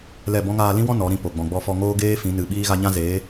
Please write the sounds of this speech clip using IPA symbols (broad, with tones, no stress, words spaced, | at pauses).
lɛ˦˨bɔ̃˦ ŋaː˧lĩ˦wɔ̃˦ nɔ˨˦ɾĩ˧ po˨ ɡ͡bɔ̃˨ɡ͡bɔ˧fɔ˧ ŋoː˦ɡeː˦fĩ˨˦ nɨ˨˦ ɓiː˦ɣa˦ ɲã˦ zeː˨˦